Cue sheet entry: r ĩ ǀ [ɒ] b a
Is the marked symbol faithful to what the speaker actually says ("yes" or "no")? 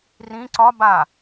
yes